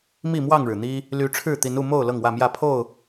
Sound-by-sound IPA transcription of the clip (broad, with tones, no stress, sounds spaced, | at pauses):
m i˥˨ m w ɑ˥˨ ŋ ɻ ɻ̩˩ n̪ i˦ | l y˨˦ ʈ͡ʂʰ ɻ̩˥˨ t̪ i˨˦ n u˥˨ m o˥˨ ʊ̯ l ɤ˥˨ ŋ w ä˥˨ m j ä˥˨ pʰ o˥˨ ʊ̯